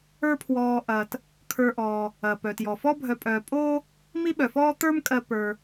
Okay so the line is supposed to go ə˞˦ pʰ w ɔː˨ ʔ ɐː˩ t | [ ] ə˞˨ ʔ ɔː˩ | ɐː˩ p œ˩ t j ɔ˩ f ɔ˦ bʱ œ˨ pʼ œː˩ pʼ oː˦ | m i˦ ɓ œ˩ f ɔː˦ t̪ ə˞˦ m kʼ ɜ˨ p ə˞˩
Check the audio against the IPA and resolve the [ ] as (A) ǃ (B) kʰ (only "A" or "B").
B